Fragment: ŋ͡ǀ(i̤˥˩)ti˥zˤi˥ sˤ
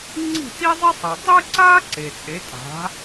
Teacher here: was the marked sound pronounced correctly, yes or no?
yes